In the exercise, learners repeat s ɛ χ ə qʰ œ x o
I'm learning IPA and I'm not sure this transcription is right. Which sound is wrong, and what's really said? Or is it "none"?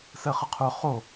x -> χ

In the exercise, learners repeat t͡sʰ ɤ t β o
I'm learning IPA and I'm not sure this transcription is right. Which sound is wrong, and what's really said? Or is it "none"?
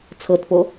β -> p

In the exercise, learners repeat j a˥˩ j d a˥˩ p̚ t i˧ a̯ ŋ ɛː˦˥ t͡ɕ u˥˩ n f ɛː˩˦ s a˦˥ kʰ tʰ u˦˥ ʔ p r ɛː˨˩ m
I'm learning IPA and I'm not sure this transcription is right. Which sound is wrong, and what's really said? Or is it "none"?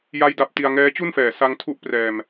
kʰ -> ŋ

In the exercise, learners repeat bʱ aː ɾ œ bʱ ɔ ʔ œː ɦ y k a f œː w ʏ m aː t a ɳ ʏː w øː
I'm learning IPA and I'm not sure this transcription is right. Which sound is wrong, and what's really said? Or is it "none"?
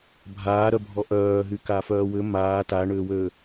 none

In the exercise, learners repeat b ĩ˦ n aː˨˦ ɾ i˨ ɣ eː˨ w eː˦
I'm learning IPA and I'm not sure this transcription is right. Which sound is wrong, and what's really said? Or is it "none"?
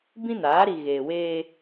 none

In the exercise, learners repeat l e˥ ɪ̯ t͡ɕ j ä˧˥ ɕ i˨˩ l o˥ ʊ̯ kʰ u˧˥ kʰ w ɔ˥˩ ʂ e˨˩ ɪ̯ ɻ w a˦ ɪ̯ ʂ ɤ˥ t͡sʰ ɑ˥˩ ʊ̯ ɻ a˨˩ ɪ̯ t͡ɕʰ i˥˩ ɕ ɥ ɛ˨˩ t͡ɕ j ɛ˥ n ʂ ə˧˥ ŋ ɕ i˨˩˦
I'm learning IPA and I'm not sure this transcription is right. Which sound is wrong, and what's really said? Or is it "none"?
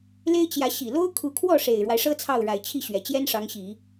ə˧˥ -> ɑ˧˥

